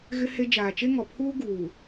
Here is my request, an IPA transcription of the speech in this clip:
ɣ ɪ˦ h e˦ d͡ʒ aː˨ t͡ʃ e˦ ŋ ɔ˨ pʰ uː˦ ɡ uː˨

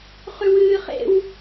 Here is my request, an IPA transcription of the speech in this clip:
χ ʉ w ɨː χ ḛ w

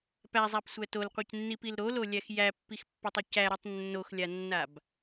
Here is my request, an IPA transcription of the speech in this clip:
p æ zˤ æ p sʷ æ t o l qʷ ɛ c nː i p i l ɾ o l o lʲ æ x j æ pː i x pː ɛ tˤ i c æ ɾ o tˤ nː o x lʲ a nː a b

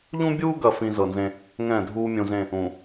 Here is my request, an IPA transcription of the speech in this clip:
ʎ ũ˦ bʲ uː˦ ɡ ɐ˨ f ĩ˦ z ɤ˨ n z ẽ˦ | ŋ ɛ̃ː˦˨ dʱ uː˦ mʲ ũ˨ z ẽ˦˨ | ũ˨

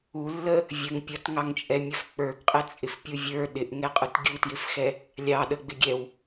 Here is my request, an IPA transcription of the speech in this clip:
u lː ə | vʲ ə ŋ pʲ ʌ t ŋ ɑ ŋ t͡ʃʼ ɛ mʲ ʌ f k͡p ə˞ ɡ qʼ ɛ t͡sʼ ɪ f pʲ u vʲ ə˞ ɗ ɪ ʔ ŋ ɛ qʼ ʊ t ɡʲ u t j ɪ f x ɛ | lʲ ɑ ɗ ə ɡ͡b ɪ ɡʲ ɛ w

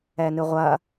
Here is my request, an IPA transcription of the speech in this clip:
ɛ n ɨ ʁʷ ɐː

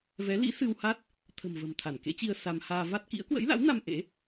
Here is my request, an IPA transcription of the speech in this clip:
v ɛ˨˦ l ḭ˧˥ s ɨ˧ w h a˦˥ t̚ | t̪ʰ ə̤˨˩ m v ə̤˨˩ m t̪ʰ a˧˩ n k ḛ˧˥ t͡ɕ i˧ ə̯ s a˧ m h aː˧ v a˦˥ t̚ k ḭ˧˥ ə̯ k w ə̰˧˥ j l a̰˧˥ w n a˧ m ʔ ḛ˧˥

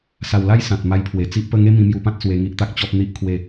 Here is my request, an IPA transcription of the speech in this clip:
s a˨˩ w l a˦ j s ã˨ t̚ m a˧ j pʰ w e˨˩ t͡s i˦ ʔ p ə˥˧ ŋ e˦ m ĩ˧ m j u˧ p ã˦ t̚ s w e˧ ŋ i˦ ʔ t̪ a˦ k̚ t͡ɕ ɔ˦ p̚ n̪ i˦ ʔ kʰ w e˥˧

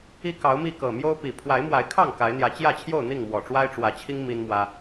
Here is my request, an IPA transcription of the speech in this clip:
i˥˨ k ɑ˨˦ ʊ̯ m i˥˨ k ɤ˨˩ m j o˦ ʊ̯ p i˨˩ pʰ w a˨˦ ɪ̯ m w a˨˦ ɪ̯ kʰ ɑ˥˨ ŋ k a˨˦ ɪ̯ n̪ j ä˨˦ t͡ɕ j ä˥˨ t͡ɕʰ j o˥˨ ʊ̯ n̪ i˥˨ ŋ m w ɔ˨˩ ʈ͡ʂ w a˦ ɪ̯ ʈ͡ʂ w ä˨˦ t͡ɕʰ i˦ ŋ m i˦ n m w ä˦

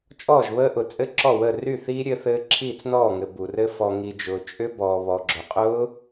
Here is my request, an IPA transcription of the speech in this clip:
t͡ʃʼ ɔː˥˩ ʒ β əː˦˥ ʔ ʊ˨ t͡sʼ ɘ˦˥ ǁ ɔ˥˩ w əː˥˩ r y˥˩ θ iː˦˥ ɾʲ ɘ˦˥ θ ɘː˦˥ ǁʰ iː˥˩ t͡s n ɔː˥˩ ŋ ɘ˨ b u˨ r ɘ˦˥ f ɔ˨ ŋ i˨ d͡ʒ ʊː˨ t͡ʃʼ ʏ˦˥ b ɔː˨ β ɔ˨ ɡ͡ǁ ʊ˨ qʼ ʊː˦˥

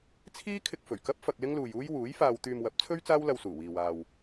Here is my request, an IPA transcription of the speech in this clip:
t͡sʰ iː˥ kʰ ɪ˧ k̚ f ɵ˨˩ ɥ k ɐ˥ p̚ f ɐ˧ k̚ l ɪ˥ ŋ l uː˨ j uː˥ j w uː˨˥ j f aː˧ w t̪ yː˧ m w ɐ˨˥ p̚ t͡sʰ ɵ˥ ɥ t͡s aː˥ w l ɐ˧ w s uː˨˩ w iː˨ w aː˨ w

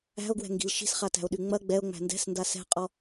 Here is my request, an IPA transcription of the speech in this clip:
æ̤ o̯ ɡ w ɛ̤ ŋ ɡ i̤ l ʃ i̤ s χ a t æ̤ o̯ ɗ y ŋ͡m ɐ ɡ͡b ɛ o̯ ŋ͡m æ̤ n d ɛ̤ s n d a s ɛ̤ qʼ ɔ

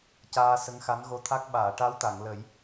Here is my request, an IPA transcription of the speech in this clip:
c aː˧ s ə˧˥ ŋ x a˧˥ n ɣ o˧˥ t̪ʰ a˦˥ k̚ ɓ aː˨˩˨ ʈ a˧˥ w t̪ a˨˩˨ ŋ l ə˨˩˦ j

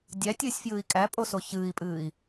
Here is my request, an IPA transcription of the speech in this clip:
dʲ æ tʲ ɨː sʲ f j ɨː i̯ kʼ æ pʼ o s o ç ɨː i̯ pʼ ɨː i̯

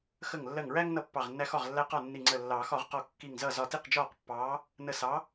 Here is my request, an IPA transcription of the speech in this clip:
x ə˧˩ ŋ lː ɜ˧˩ ŋ ɹ æ˦ ŋ n ʌ˥˩ pː ɑ˧˩ ʁ nː æ˦ x ɒ˥˩ ʁ lː æ˦ q ɒ˥˩ nː i˧˩ ŋ͡ǀ ə˧˩ lː ɑː˨˩˦ x ɒ˨˩˦ ʁ q ɔ˧˩ kː i˧˩ ŋ z ʌ˥˩ z ɒ˧˩ t i˥˩ q d͡ʒ ɒː˥˩ q pː ɑː˨˥ | n ə˧˩ s ɑ˨˥

